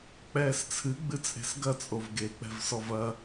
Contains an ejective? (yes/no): yes